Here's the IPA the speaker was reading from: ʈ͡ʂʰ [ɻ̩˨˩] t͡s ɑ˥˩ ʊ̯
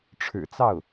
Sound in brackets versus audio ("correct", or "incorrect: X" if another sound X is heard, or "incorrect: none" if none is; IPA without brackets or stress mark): correct